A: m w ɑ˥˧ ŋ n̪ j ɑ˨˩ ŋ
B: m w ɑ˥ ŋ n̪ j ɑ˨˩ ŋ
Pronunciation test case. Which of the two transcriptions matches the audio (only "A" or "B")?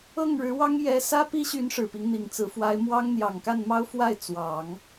B